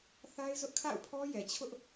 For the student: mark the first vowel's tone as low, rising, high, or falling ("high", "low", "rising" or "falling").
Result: high